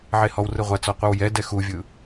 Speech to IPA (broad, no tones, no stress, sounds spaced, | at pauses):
ʕ e h ɔ w r ɯ ʁʷ a t͡s ɔ qʷ ɯ w j ɛ d ɛ x u vʲ ɯ